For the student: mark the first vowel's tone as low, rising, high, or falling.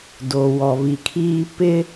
low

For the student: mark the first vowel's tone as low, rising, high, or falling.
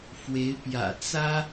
rising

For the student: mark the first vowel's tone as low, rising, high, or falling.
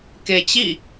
low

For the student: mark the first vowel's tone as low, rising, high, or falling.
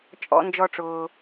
high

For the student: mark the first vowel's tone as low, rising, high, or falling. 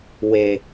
low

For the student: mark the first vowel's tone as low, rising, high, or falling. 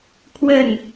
falling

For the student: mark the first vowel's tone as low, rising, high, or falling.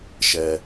low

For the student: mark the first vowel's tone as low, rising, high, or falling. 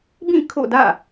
falling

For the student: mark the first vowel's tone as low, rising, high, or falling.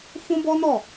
high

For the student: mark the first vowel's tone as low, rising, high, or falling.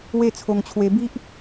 falling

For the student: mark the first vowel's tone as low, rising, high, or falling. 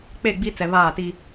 falling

